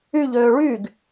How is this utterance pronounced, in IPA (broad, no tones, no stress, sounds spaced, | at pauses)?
y ʎ øː ɭ y ɡ